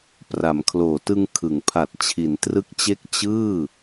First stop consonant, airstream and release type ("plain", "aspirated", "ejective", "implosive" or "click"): plain